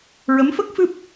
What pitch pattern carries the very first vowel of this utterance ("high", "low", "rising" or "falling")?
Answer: rising